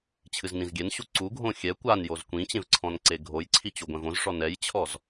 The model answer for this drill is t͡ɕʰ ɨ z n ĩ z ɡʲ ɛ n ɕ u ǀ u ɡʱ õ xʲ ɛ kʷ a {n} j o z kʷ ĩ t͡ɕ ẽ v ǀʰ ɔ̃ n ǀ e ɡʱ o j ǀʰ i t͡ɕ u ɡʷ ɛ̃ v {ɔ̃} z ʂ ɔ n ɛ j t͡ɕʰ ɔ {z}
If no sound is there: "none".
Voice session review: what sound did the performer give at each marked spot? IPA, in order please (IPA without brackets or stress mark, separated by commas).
n, õ, z